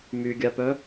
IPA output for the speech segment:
m y ɡʲ a p œ

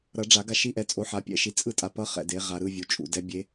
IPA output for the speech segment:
ɾ ʌ˨˩˦ ɖ͡ʐ a˨˩˦ ɡ a˦˨ ʃ i˧˥ ʔ ɛ˩˥ t͡sʼ o˩˥ ħ a˩˥ pʲ ɛ̰˨˩˦ ʃ i˩˥ t͡sʼ ɯ˦˨ tʼ a˨ p ʌ˧˥ χ ɛ̰˨ d e˩˥ ʁ a˨ ɾ ɯ˦˨ vʲ u˩˥ t͡ʃʼ ṵ˨ d ɛ˧˥ bʲ e˧˥

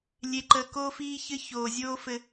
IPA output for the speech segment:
lʲ e˨ ǃ əː˨ k oː˦ f iː˦ ç ɘ˦ ç oː˨ zʲ oː˦ f ɘ˦

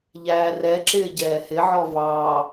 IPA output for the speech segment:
ʎ æː r ɛ ǁ ɪː ɟ ɛː h ɪ ʕ ɔ v ɑː

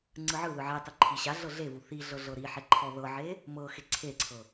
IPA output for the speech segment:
ŋ͡ǀ ɯ ʕ ɯ ð ɯ ʕ e tˤ u ǃʰ i ɕ a ɮ ɤ ɮ e v u θ i ɮ ɤ ɮ ɤ ɾ i ħ ɛ ǃʰ ɔ ð ɤ ʕ e | m ɤ x e ǀʰ e ǀʰ ɤ

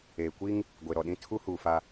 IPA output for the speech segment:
eː˨ kʷ i˦ ŋ | ɡʷ e˨ ɾ ɔ˨ ɗ ĩ˦ tʰ u˦ h uː˨ f a˦

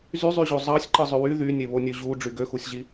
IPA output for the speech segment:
z y zˤ y ʑ o zˤ ɑ sʲ ǃ ɯ zˤ ø w y ð y nʲ e β o nʲ ø ʑ u ɖ͡ʐ y ɡ ø x u sʲ ʑ i

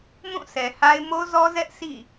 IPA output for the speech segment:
m ũ˦˨ s ɛ˨ h a˦ ɪ̯ m o˦ z ɔ˦ z ɛ˦ ʔ s ḭ˦˨

